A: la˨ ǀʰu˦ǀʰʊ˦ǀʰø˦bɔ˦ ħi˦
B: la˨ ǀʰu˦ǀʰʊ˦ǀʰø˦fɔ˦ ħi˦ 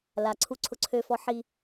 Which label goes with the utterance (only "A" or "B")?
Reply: B